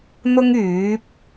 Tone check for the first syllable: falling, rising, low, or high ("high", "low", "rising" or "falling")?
high